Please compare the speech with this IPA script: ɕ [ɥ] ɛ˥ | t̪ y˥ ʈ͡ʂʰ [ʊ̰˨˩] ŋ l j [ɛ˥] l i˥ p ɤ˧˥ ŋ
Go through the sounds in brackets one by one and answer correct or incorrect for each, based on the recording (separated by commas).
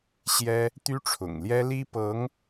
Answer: incorrect, correct, correct